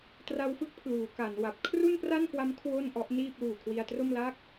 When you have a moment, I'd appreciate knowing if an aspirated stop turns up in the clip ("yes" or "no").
yes